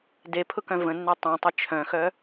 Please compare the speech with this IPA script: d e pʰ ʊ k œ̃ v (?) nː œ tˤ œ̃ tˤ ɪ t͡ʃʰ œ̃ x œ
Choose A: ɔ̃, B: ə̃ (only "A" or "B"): B